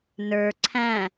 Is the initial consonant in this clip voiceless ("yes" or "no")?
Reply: no